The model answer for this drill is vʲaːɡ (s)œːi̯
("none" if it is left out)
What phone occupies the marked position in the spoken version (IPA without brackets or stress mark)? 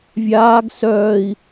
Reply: s